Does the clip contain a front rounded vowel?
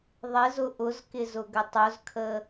no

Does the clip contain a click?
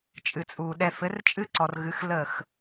yes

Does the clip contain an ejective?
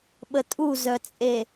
yes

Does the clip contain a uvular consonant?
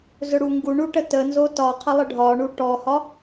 yes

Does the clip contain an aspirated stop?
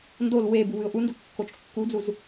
no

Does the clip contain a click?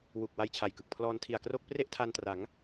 no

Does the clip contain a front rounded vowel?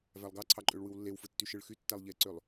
yes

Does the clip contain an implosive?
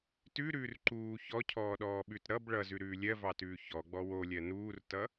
yes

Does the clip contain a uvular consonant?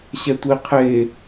yes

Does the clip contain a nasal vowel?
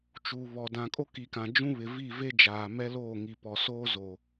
yes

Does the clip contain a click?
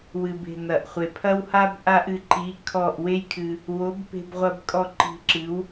yes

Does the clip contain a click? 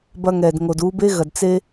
no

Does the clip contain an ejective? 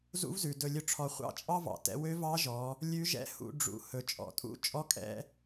yes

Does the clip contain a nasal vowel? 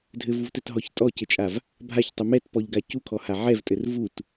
no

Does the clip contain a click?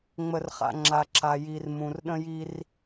yes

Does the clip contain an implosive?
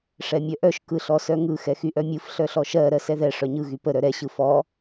no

